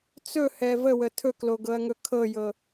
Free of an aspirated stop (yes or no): no